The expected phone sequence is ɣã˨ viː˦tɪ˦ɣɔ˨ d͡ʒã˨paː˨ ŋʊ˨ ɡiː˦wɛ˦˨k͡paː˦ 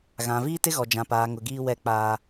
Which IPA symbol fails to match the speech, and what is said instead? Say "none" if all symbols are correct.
none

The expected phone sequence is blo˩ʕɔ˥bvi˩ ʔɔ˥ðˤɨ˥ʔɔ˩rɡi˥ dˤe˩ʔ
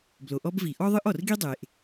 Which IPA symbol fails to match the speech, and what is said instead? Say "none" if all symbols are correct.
ʕ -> ʔ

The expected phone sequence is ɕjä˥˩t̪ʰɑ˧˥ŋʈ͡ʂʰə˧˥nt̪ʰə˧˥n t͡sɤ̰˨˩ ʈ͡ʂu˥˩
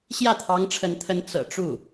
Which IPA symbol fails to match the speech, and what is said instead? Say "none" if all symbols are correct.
none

